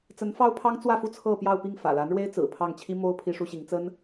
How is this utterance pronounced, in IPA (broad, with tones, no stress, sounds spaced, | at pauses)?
t͡s ə˧˥ n f ɑ˥ ʊ̯ pʰ ɑ˥ ŋ t͡s w ä˥˧ f u˥˧ t͡sʰ ɤ˥˧ p j ɑ˥˧ ʊ̯ p i˥˩ ŋ f ä̰˨˩ l a˧˥ n ɻ w e˥ ɪ̯ t͡s ɹ̩˨˩ pʰ ɑ˥˩ ŋ t͡ɕʰ i˥ m o˥ ʊ̯ pʰ i˥ ʂ u˥ ɕ i˧˥ ŋ t͡s ə˥ n